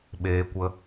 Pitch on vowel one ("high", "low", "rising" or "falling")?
high